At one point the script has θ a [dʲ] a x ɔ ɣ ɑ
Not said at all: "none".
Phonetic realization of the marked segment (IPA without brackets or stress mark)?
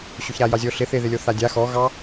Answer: dʲ